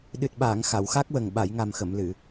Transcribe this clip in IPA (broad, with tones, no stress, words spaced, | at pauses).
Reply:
ɗɨ˨˩t̚ɓaː˨˩˨ŋ xa˨˩˨wxa˦˥k̚wə˨˩ŋ ɓa˨˩˨jŋa˨˩mxə˨˩˨m lɨ˨˩˨